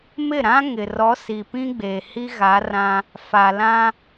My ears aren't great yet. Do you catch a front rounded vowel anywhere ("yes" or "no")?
no